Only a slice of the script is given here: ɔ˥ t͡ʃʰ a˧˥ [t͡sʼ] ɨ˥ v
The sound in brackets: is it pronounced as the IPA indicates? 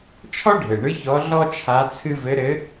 no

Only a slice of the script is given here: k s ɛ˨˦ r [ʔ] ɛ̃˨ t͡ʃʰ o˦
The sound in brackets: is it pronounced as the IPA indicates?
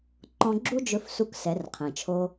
no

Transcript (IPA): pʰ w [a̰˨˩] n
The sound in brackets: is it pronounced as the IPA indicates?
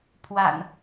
yes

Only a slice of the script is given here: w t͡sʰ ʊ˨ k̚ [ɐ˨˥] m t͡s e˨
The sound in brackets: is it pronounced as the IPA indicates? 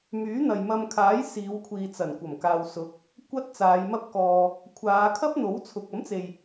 yes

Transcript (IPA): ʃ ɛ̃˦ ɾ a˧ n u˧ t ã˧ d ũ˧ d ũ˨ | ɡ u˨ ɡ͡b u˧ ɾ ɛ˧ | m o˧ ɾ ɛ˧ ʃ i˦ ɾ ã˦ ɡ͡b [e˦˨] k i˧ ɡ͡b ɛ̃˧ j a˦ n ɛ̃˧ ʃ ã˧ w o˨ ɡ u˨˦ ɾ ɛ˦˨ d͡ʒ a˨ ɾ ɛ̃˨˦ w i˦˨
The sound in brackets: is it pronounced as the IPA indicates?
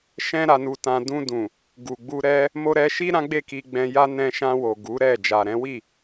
yes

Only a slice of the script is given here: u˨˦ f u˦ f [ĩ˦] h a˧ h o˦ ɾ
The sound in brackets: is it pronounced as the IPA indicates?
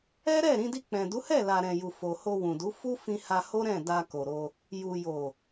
no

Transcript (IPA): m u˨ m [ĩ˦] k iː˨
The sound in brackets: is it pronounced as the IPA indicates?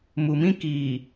yes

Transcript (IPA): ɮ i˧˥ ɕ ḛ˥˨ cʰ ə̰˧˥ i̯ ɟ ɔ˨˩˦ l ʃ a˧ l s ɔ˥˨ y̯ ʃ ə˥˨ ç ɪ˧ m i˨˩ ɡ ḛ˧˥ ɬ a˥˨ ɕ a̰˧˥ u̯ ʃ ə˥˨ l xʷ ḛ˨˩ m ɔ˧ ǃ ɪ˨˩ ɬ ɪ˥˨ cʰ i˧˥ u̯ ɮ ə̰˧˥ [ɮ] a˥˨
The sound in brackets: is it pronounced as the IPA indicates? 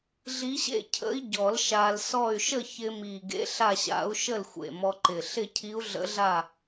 yes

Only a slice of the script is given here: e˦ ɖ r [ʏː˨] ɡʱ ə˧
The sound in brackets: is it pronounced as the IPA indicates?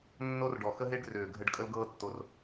yes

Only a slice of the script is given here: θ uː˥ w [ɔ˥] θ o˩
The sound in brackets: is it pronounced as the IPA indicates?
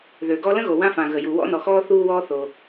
no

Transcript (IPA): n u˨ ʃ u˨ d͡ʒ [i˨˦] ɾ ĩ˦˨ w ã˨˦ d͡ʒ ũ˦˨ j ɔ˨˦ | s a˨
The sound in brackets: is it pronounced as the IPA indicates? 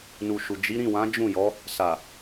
yes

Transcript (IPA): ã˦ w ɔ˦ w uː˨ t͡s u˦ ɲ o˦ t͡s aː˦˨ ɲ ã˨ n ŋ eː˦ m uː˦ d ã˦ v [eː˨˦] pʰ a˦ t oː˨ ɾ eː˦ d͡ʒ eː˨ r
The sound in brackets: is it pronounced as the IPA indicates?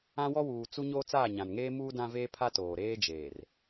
no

